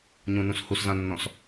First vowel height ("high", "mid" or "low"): high